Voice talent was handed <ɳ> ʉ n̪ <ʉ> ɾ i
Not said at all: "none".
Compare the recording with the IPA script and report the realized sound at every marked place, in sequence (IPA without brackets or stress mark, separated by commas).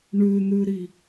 ɳ, ʉ